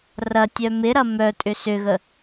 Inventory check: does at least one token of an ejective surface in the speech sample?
yes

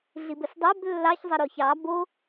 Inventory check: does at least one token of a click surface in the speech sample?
no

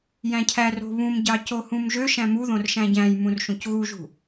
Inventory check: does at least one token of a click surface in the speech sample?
no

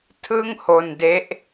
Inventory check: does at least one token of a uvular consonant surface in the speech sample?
no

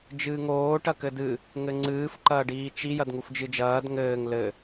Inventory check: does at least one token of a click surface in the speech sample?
yes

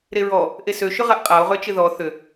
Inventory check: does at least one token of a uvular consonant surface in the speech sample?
yes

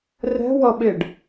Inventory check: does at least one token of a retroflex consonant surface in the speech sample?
yes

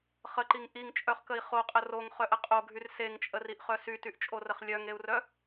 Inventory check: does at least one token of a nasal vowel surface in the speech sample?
no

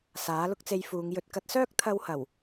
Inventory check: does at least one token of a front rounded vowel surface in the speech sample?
yes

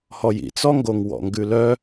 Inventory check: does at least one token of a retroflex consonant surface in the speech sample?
no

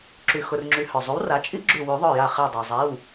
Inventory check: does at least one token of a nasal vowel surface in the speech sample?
no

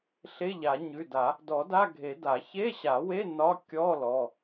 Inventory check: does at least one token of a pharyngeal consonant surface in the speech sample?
no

